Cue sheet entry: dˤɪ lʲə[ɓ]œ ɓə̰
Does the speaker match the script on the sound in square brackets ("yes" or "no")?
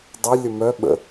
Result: no